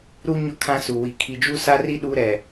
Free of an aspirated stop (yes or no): no